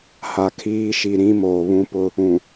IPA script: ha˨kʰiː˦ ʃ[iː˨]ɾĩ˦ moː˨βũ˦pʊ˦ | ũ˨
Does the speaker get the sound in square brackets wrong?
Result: yes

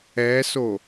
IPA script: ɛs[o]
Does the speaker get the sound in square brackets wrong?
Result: no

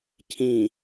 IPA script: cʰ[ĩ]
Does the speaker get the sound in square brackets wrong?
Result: no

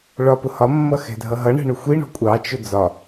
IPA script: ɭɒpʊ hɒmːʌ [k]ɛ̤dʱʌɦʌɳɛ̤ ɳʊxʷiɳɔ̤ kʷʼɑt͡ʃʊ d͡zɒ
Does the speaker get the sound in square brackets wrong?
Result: yes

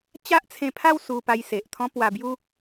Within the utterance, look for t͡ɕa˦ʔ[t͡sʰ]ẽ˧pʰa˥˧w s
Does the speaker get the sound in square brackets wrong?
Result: no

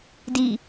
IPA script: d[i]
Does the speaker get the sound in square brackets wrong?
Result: no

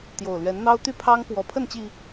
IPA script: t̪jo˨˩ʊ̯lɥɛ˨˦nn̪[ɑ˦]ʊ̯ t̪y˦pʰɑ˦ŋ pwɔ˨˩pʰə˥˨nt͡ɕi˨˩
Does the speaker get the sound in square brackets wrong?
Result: no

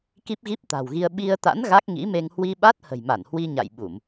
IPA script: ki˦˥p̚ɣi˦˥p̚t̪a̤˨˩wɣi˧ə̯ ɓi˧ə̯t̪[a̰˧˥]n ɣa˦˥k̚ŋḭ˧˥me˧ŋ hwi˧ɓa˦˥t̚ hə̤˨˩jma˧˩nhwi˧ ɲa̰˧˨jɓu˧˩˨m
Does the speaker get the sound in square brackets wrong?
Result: no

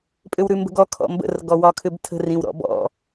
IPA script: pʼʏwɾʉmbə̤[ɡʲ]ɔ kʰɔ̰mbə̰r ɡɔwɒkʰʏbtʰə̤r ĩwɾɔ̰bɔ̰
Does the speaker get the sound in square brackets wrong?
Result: yes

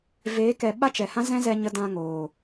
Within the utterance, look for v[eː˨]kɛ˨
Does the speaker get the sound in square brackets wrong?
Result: yes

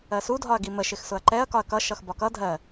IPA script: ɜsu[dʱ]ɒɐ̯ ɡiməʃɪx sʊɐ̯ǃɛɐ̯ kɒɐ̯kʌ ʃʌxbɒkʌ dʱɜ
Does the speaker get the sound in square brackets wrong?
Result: no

